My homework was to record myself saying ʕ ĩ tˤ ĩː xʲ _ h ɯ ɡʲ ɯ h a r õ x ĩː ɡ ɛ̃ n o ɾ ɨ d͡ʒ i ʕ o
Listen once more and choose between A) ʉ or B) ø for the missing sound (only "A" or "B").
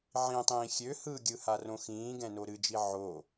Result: B